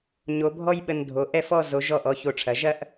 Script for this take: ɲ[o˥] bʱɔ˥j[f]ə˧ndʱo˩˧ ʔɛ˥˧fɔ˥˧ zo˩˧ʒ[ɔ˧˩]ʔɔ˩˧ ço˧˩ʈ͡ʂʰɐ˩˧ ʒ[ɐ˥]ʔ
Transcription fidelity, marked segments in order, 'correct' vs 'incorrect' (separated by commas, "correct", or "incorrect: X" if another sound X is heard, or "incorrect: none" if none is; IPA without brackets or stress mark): incorrect: o˩˧, incorrect: ɓ, correct, correct